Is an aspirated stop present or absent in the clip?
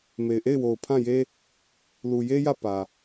present